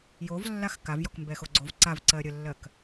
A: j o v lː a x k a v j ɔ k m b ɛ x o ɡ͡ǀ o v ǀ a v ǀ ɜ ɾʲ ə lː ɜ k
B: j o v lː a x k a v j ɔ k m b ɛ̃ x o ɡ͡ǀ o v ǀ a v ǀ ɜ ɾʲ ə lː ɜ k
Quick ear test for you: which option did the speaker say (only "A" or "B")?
A